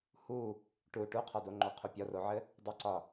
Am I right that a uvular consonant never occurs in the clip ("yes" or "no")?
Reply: no